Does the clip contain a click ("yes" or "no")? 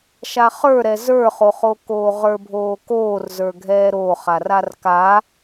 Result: no